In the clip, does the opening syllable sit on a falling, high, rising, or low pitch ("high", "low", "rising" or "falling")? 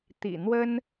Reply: low